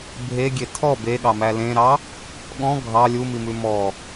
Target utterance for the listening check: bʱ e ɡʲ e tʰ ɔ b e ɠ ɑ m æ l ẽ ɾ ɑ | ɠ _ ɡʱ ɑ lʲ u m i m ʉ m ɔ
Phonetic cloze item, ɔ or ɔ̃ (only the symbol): ɔ̃